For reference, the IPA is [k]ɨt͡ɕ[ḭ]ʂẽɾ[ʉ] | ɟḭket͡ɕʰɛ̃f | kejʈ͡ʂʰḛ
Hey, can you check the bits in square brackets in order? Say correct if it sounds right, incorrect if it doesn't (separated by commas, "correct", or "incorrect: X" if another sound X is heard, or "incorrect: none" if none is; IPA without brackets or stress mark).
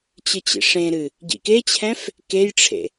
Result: incorrect: t͡ɕ, correct, incorrect: ɨ